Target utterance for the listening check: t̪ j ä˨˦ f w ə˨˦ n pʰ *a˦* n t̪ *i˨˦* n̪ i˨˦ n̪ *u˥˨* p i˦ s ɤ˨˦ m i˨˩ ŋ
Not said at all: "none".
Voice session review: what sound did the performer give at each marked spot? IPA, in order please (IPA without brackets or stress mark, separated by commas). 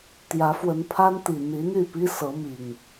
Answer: a˦, i˨˩, y˥˨